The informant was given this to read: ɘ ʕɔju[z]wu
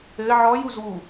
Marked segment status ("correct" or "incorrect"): correct